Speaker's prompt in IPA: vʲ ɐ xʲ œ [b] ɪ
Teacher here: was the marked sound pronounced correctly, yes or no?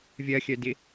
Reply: no